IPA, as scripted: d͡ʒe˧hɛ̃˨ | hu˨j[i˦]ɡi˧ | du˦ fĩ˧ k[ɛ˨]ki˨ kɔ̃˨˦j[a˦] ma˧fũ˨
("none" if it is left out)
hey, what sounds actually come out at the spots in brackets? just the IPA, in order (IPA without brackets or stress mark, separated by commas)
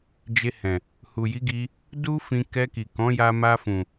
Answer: i˨˦, ɛ˧, a˧